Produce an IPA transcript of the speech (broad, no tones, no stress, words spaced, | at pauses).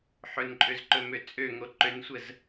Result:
ħɵnǃʼøzǃɵmø t͡sʼøŋo ǃønsʷəz